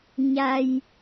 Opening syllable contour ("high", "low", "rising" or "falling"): low